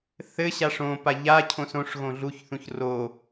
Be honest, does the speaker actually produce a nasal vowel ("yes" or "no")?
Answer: yes